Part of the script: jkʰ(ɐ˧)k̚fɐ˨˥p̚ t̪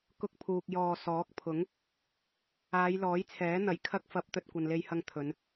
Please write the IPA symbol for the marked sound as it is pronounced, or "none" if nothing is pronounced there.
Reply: ɐ˧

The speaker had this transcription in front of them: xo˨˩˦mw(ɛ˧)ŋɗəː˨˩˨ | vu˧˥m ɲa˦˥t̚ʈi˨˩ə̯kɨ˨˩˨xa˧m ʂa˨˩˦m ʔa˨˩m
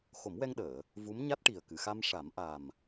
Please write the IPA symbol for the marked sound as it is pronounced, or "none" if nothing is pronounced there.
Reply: ɛ˧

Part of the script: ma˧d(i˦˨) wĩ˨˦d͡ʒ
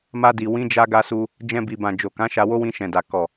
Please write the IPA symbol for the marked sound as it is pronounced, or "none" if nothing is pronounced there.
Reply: i˨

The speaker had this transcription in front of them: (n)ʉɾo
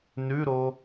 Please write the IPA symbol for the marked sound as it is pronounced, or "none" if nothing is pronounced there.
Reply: n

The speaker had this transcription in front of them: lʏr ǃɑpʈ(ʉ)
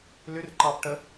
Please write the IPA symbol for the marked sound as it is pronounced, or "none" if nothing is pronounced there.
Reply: ə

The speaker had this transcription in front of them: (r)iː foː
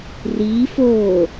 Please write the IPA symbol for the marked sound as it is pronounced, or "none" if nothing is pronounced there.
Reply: r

